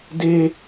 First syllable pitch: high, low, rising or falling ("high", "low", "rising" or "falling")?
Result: high